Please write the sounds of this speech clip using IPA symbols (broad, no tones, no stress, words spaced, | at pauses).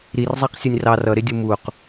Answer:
ɾirzˤæqsʲʌnʲ rɑr ʌɾɪdʲu muq